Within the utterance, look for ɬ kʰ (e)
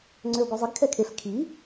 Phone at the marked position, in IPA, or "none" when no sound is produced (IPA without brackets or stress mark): i